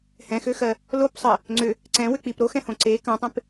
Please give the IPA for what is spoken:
h ɛ̃ x ø x ɜ | l o p sˤ ɜ | ŋ͡ǀ ʏ | ǀ ɛ̃ w ʏ k͡p i p ɾ o x ɛ̃ h õ ǀ e k ɐ̃ tˤ ẽ p

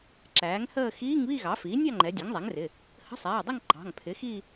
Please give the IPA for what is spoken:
ǁ æː˩˥ ŋ h əː˥˧ x iː˧˥˧ ŋ β i˥˧ ɣ ɑ˩˥ f iː˩˥ nʲ ɑ˥˧ ŋ͡ǃ ɛ˩˧ dʲ æ˩˥ ŋ zˤ æ˩˥ ŋ r ɪ˩˧˩ | h ə̤˧˥˧ sˤ æː˩˧˩ dˤ ɪ˥˧ ŋ ǃ ɑ̤˩˧˩ ŋ pʰ ɪ˩˥ x i˥˧

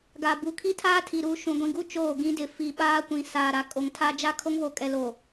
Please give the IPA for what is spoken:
ɡ a˨ b u˨ kʰ i˦ tʰ aː˦ tʰ i˨ ɾ u˨˦ ʃ ũ˨ ɡʷ ĩ˨ ɡ u˦ t͡ʃ oː˦˨ ɡ ĩ˦ d ɪ˨ f i˨ ɓ aː˦ kʷ ĩ˨ s aː˨ ɾ a˨ kʼ o˨ ŋ tʰ a˦ d͡ʒ a˦ kʰ o˦ ŋ β o˨ kʼ ɛ˨ l o˨

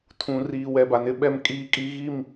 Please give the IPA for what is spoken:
tʰ ũ˨ r iː˨ w ɛ˨ b a˨ n ɪ˦ ɓ ɛ˦ m kʼ iː˦ kʼ i˦ ɣ i˦˨ m

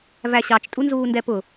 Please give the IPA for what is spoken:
v æ ɕ ɑ t͡ʃ tʼ u n z uː n d ɛ p ʊ

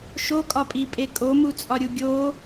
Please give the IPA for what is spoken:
ʃ o kʼ ɒ pʼ i pʼ e kʼ o m u t͡sʼ ɒ ɾʲ u ɡʲ o

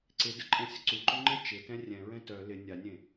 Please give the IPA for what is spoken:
ǀ ɪ d ə ǃʼ ɛ̃ sʲ ʊ ǀ u ǃ ʊ ŋ͡ǃ ɪ t͡ʃ ɪ t ɛ̃ rʲ ɛ̃ ɹ ɛ̃ t œ l ɪ nʲ a nʲ ẽ

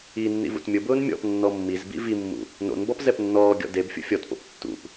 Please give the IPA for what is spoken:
i nː ḭ v ṵ t mʲ ʊ b ʊː n mʲ ɔ̰ p nː ɔ mː i z b ḭ v i mː ṵ | n o̰ n b ɔ p z ɛ p nː ɔː ɡʲ ɔ̰ d e b fʲ ṵ fʲ ɔ t p o̰ p tː ṵ p

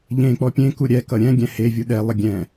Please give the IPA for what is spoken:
ʎ ẽ k͡p ɔ pʲ ẽ k u ɾʲ ɛ k ʌ ɾʲ ɛ̃ ɡʲ ɛ̃ h e vʲ u ɗ ɛ lˠ ə ɡʲ ɛ̃

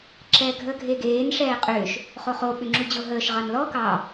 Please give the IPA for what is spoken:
ǁ ɛː ɡʱ əː ɡʱ e ɡ eː n ʂ ɛː qʼ ʏː ʃ | χ o χ o ɓ ʏ ŋ͡ǁ u d͡ʑ o ɦ əː ʃ ʁ ɑ n l ɔ k ɑ

